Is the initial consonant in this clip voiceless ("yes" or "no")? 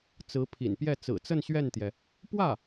yes